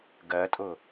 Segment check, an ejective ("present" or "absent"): present